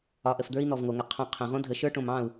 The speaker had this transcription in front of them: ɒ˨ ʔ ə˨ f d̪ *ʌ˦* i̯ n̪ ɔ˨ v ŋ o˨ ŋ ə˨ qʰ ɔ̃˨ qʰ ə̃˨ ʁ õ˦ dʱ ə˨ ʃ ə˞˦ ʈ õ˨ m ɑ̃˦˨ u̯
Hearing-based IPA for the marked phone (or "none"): ə˞˦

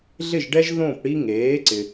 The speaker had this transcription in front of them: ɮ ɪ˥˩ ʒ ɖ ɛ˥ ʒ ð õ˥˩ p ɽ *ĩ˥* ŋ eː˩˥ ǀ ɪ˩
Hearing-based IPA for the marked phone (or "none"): i˥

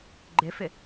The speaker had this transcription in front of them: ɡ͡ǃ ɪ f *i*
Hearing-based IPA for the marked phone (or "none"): ɪ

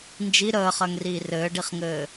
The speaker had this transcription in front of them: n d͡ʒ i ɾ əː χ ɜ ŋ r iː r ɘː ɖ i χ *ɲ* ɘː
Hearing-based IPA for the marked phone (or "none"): ŋ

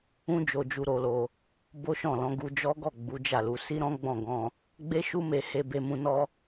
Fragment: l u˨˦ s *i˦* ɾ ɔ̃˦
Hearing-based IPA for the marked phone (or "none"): i˦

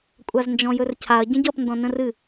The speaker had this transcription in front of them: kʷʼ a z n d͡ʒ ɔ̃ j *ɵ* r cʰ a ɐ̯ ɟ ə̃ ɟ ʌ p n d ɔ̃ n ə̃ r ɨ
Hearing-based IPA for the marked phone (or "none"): ɵ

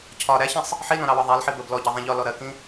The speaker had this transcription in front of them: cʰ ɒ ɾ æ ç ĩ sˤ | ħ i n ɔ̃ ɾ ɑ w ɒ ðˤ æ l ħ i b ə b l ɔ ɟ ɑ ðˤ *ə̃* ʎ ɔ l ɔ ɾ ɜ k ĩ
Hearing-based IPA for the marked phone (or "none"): ɛ̃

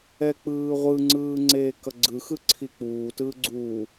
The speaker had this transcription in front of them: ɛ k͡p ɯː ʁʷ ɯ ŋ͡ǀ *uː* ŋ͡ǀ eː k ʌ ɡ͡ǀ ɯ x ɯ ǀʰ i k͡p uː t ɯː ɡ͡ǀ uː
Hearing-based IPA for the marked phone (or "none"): ɯː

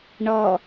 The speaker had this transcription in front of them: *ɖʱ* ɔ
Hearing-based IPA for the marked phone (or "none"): ɳ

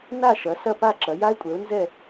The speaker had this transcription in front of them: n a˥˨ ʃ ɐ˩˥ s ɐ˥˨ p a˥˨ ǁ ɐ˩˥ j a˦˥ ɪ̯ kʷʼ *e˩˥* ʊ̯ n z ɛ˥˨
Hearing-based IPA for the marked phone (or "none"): ɛ˩˥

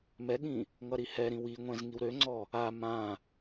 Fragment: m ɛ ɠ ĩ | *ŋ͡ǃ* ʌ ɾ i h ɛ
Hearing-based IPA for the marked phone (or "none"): ŋ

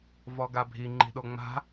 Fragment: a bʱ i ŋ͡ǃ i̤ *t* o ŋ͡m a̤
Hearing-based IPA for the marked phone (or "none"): ɗ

